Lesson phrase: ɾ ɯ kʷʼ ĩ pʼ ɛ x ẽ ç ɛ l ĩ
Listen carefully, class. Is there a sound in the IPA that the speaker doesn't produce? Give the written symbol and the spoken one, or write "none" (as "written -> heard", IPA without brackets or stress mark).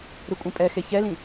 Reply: ẽ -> e